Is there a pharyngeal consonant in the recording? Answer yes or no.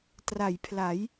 no